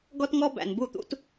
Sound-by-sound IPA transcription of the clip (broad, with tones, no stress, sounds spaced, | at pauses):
ɡ ɔ˦ t ŋ ɔ˦ b æ̰˨ n b u˦˨ t̪ ṵ˦ t